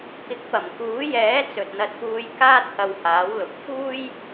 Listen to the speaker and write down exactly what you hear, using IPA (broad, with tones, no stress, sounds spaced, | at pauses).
k ɪ˨˥ k̚ p ɐ˨˩ m k uː˨˥ j ɛː˨˥ t͡s ɵ˨ t̚ n̪ ɐ˧ t̚ p uː˧ j k aː˥ t̚ h ɐ˧ w h aː˨˥ w l ʊ˨ k̚ f uː˥ j